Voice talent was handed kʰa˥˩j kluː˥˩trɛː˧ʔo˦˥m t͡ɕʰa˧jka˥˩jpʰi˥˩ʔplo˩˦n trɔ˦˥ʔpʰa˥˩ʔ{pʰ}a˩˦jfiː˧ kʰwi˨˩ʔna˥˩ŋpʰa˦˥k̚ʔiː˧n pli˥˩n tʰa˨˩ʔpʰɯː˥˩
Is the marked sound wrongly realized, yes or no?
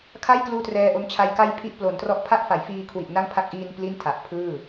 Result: yes